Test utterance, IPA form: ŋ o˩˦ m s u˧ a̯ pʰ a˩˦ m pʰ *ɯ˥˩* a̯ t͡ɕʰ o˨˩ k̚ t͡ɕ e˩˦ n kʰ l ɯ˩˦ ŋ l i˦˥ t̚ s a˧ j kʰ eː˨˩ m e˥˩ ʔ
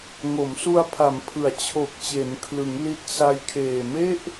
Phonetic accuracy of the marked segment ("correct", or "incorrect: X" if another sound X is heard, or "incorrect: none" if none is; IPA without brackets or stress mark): incorrect: ɯ˩˦